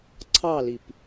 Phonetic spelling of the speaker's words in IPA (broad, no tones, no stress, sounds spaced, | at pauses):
ǀʰ ɑ l i p